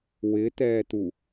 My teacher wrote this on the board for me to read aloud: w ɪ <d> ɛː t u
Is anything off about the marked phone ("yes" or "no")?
yes